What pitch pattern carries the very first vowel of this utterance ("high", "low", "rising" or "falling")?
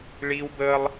high